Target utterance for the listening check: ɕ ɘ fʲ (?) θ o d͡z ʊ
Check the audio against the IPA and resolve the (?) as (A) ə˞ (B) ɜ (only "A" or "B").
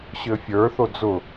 A